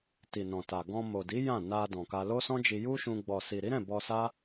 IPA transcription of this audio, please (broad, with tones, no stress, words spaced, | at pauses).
ti˨ nɔ̃˨ta˨ ɡɔ̃˧mo˨di˨˦ jã˦˨ na˧ dɔ̃˨ka˧lo˦ sɔ̃˦d͡ʒi˧ ju˦ʃũ˧ ɡ͡bɔ˨si˨ ɾi˨˦ɾɛ̃˦˨ bɔ˧sa˦